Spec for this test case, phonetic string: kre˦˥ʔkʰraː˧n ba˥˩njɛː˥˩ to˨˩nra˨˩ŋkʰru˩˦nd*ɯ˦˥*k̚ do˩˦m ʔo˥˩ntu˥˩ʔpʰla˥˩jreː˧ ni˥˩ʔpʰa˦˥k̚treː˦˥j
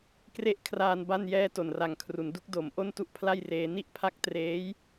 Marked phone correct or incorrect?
incorrect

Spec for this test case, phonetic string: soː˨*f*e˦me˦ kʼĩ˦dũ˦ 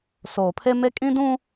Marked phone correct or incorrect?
incorrect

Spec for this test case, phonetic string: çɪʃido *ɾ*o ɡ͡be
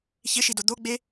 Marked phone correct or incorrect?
incorrect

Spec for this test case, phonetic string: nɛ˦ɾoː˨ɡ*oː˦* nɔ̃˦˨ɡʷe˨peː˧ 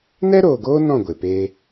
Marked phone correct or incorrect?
correct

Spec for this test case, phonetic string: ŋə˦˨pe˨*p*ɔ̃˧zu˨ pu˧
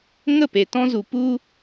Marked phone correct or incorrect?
incorrect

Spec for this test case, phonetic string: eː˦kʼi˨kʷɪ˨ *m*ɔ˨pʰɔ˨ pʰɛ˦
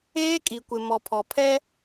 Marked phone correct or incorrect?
correct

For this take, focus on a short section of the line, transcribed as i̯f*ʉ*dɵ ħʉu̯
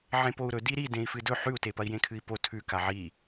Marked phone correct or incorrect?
incorrect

